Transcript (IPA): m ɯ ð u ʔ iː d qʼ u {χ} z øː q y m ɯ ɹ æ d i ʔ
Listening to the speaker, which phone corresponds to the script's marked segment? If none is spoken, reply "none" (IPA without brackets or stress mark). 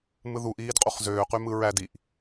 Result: χ